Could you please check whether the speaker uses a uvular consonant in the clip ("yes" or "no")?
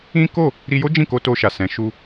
no